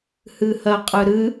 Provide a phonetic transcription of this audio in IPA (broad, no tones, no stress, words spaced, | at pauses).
hɨhɜqʼɨɾɨ